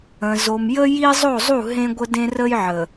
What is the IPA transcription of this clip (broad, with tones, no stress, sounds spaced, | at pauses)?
ə̃˨ z o˨ m j ə˦ j i˦ zˤ o˦˨ zˤ u˦˨ ɦ ẽ˦ ɡʷ ə˦ d ẽ˦ r ə˦ j ʕ ə˨